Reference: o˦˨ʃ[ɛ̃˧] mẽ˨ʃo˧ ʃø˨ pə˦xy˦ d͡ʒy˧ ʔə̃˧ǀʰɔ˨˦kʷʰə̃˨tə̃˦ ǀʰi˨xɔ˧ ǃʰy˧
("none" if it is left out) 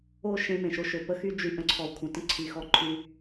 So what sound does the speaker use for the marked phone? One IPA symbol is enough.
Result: ẽ˧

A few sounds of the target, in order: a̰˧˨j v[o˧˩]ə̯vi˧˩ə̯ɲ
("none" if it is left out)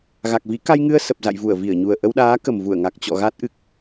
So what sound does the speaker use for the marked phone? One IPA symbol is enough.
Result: u˧˩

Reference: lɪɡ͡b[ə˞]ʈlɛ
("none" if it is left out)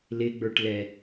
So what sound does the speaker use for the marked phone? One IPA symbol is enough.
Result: ə˞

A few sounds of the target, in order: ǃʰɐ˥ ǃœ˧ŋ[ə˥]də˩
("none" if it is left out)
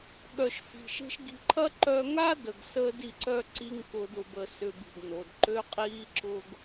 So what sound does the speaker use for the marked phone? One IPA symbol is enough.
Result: a˥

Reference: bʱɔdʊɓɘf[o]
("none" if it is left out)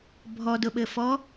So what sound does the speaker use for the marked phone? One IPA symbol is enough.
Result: ɔ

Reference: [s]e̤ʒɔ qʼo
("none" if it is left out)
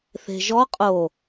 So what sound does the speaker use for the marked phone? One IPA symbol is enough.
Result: θ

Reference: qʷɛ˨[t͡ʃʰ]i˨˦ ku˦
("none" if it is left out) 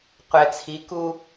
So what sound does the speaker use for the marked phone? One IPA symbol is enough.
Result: t͡sʰ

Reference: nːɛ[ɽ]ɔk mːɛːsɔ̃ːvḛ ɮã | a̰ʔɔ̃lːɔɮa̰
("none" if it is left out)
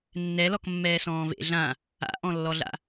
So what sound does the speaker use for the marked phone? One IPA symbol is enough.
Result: l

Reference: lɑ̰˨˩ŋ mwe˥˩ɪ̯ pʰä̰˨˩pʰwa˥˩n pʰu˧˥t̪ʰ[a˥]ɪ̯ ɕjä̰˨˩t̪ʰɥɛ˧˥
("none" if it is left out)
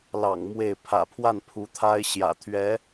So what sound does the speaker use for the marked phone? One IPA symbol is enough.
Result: a˥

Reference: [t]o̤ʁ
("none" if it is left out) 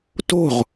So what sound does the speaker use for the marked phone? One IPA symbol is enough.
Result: t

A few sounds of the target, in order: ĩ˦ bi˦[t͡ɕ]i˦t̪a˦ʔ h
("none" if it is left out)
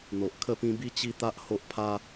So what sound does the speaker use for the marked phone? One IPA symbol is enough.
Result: t͡ɕ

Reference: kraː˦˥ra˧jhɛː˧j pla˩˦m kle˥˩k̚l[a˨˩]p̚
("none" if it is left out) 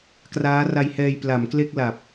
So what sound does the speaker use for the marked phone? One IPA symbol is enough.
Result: a˨˩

